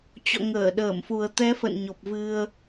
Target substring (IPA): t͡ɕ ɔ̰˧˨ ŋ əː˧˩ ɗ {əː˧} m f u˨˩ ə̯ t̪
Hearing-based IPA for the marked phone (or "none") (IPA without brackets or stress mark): əː˧˩